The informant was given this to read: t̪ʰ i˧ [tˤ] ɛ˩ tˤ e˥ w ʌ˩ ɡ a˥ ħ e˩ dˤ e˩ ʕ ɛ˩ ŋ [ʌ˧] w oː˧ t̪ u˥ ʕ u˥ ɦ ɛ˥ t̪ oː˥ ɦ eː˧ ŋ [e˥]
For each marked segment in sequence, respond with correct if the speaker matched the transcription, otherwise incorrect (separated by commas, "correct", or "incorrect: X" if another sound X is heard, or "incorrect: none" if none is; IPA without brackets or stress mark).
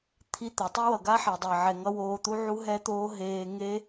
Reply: incorrect: t̪, correct, correct